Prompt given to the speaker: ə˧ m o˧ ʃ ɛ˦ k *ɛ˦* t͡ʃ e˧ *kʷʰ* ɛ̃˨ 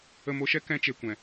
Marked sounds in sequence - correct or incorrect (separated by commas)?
incorrect, incorrect